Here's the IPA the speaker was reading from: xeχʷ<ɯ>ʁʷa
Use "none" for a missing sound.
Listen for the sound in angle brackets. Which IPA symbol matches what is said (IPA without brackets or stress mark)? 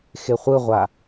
ɯ